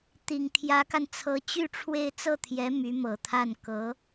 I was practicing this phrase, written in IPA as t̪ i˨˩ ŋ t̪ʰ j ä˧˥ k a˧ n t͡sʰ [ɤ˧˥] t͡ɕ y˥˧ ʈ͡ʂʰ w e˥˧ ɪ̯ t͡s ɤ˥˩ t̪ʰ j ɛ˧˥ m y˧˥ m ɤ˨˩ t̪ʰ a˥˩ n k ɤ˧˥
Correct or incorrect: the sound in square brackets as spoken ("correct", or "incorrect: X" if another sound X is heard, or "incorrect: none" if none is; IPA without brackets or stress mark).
correct